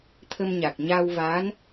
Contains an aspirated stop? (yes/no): yes